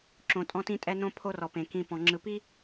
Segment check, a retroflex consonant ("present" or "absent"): absent